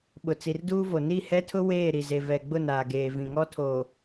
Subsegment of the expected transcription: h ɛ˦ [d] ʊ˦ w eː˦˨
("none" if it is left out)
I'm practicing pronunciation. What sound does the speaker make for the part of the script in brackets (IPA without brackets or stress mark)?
tʰ